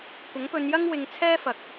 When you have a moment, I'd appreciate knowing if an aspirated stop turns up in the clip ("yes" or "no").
yes